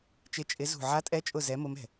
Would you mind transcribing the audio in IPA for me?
t͡ʃ ɪ˨˥ t͡ʃʼ ɪ˨˥ z ṳ˧˩ ʕ a˨˥ tʼ ɛ˨˥ t͡ʃʼ ʊ˧˩ z ɛ˨˥ m ʊ˨˥ m ɛ̤˩

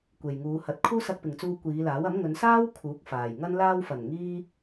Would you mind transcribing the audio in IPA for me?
kʷ e˨ j ŋ uː˨˧ h ɐ˨˥ t̚ kʰ uː˥ s ɐ˧ k̚ p ɪ˨ ŋ t͡s uː˧ kʷ iː˨˧ l aː˨˥ w ɐ˨˥ m ŋ ɵ˨˧ n s aː˥ w kʰ uː˨˥ k̚ f aː˨˩ j ŋ ɐ˥ n l aː˧ w f ɐ˨˩ n ŋ iː˥

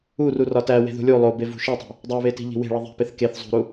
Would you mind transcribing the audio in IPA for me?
u r u r ɒ t æ w e̤ ð ṳ lʲ u lˠ o b e v ṳ ʃ e tˤ e̤ | dˤ u β e t i̤ ʎ i̤ w e̤ ɭ i ðˤ i̤ p e θ k e θ zˤ ṳ ɾ u

